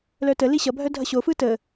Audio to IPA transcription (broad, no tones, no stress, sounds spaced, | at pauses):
l œ t ə l i ɕ ʌ bʱ œ dʱ ʌ ɕ o f ɯ t ə